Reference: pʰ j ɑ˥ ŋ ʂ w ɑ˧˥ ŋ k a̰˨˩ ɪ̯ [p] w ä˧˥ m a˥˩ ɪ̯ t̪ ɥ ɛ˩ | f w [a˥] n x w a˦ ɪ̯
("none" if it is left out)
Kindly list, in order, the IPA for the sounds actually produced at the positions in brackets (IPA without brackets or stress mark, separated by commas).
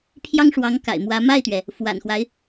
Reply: m, a̰˨˩